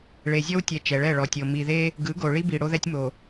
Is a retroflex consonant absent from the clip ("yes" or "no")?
no